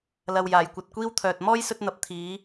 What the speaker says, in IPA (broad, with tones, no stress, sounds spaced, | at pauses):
l ɐ˨ w j aː˨˩ j kʷ ɐ˨ t̚ kʷ iː˥ w t̪ʰ œː˨ t̚ m ɔː˥ j s ɵ˧ t̚ n̪ ɐ˨ p̚ t̪ʰ iː˨˥